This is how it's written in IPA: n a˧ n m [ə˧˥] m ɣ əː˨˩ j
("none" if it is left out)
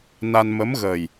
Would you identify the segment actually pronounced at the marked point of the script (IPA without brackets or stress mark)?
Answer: ə˧˥